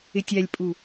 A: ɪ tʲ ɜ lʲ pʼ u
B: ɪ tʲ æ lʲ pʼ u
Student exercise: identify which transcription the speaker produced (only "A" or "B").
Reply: B